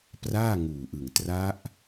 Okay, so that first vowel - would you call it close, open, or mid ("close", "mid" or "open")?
open